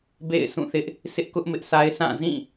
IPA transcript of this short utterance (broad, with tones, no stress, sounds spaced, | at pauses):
b ḛ˦˨ ɪ̯ s ũ˦˨ θ ɪ˦ ʔ | s ɪ˦ ʔ k ʊ˦ ʔ m ɪ˦ ʔ sʰ a˦ ɪ̯ sʰ ã˦˨ z ĩ˦˨